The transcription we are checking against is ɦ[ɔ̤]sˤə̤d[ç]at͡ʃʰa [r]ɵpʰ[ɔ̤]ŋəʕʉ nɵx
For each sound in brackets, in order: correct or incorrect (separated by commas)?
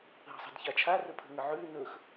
incorrect, correct, correct, incorrect